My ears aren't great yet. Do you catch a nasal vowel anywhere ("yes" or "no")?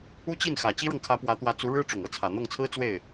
no